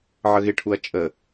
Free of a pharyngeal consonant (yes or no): no